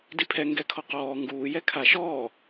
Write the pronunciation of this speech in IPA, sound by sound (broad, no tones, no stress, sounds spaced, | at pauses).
d i pʰ ɛ ŋ ɡ ɛ kʰ ɔ q ɔː ŋ ɡ uː j ɛ kʰ a ʃ ɔː